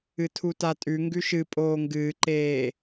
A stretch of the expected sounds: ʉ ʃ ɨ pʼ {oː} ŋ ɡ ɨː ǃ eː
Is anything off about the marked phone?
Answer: no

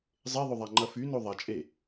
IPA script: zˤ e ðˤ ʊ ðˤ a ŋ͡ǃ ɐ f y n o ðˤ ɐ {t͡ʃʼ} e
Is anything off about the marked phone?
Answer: no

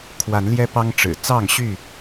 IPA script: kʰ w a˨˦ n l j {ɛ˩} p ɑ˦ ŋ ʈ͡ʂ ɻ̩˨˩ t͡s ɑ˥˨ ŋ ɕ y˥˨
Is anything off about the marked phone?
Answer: yes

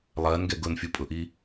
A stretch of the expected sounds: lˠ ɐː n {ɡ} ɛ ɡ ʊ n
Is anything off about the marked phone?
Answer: no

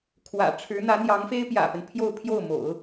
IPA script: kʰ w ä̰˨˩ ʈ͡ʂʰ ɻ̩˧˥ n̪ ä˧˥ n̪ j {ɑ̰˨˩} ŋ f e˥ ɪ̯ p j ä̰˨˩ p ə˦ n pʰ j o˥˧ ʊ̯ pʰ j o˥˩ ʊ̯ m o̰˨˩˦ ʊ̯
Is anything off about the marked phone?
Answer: yes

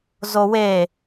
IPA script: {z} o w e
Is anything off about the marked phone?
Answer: no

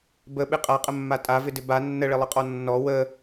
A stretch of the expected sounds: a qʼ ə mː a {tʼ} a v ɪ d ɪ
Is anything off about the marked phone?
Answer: no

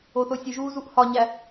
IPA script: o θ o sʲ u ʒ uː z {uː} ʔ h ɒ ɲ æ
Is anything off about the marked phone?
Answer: yes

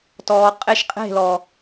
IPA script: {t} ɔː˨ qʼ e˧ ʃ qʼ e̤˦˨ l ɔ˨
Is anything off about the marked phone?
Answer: no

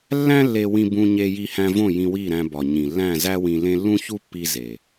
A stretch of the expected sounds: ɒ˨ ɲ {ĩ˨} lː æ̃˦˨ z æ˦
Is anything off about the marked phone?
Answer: no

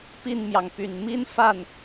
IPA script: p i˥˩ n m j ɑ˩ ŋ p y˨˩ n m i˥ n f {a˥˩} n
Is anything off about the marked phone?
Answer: no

